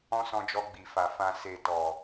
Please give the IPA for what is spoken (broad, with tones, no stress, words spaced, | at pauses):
ɔ̃˦sɔ̃˧d͡ʒɔ˧ ɡ͡bi˨fa˨fã˧ se˨ tɔ˨